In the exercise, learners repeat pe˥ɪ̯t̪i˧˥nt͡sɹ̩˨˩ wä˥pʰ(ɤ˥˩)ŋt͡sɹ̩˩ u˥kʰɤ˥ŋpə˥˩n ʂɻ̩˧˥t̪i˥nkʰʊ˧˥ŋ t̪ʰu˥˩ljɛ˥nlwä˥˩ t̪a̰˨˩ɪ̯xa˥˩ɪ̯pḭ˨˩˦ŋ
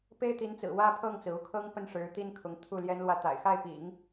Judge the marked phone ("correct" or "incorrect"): correct